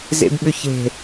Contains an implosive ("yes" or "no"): yes